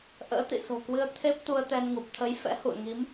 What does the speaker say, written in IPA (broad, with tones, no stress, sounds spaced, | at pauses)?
ʔ ə̰ː˧˥ t̪ ḭ˧˨ s o̤˨˩ k w ɨ˧ ə̯ t̪ʰ e˦˥ p̚ t̪ u˧ ə̯ t̪ ɛ˧ n ŋ u˨˩ p̚ t̪ʰ ə˨˦ j f ɛ̰˧˥ h ṵ˧˨ ə̯ ŋ i˨˦ m